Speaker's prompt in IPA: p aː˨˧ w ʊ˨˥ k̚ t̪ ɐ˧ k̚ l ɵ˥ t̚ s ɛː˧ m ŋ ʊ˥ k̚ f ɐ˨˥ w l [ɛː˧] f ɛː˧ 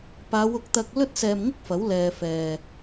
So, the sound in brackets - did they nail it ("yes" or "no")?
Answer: yes